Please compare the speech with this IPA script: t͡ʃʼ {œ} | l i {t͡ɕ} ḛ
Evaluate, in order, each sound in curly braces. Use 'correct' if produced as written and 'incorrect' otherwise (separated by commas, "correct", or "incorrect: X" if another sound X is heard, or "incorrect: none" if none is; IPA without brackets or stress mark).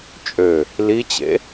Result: incorrect: ø, correct